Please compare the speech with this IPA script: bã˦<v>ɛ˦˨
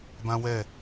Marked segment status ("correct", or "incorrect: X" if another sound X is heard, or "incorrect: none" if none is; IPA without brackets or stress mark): incorrect: w